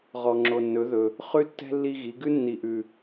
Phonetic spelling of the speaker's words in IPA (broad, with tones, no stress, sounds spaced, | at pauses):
ʁ ɔ˨ ŋ͡ǁ o˨ nː ɵ˩˥ ð ɵ˨ | χ ʉ˦ tː ɛ̤˦ lː i˦ ɣ i˩˥ ɡ ʉ˦ nː i˨ ʔ ʉ˨